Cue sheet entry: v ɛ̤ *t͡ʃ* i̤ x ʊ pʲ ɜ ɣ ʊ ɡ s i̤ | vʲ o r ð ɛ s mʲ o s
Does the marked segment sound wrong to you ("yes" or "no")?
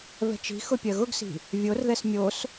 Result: no